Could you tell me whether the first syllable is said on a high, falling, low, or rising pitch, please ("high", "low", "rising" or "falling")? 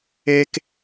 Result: high